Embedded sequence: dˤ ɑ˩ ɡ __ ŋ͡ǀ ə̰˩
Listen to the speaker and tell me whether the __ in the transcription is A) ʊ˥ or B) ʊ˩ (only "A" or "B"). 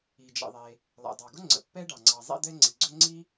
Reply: A